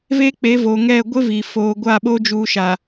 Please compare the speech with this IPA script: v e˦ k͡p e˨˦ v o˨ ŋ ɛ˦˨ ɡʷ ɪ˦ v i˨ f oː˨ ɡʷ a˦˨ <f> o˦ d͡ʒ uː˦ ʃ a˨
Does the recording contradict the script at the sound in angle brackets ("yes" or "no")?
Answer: yes